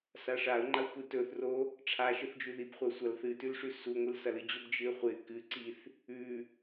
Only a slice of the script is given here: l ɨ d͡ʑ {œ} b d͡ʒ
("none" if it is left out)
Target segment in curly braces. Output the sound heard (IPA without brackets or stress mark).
ɵ